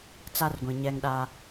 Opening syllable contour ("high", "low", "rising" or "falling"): high